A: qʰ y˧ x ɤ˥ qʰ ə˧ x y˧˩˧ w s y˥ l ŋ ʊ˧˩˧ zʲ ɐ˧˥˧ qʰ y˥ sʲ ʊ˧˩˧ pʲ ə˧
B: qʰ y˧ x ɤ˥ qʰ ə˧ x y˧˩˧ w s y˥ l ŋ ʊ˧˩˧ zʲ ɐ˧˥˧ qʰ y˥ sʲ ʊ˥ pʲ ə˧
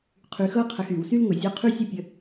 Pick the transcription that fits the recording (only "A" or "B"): B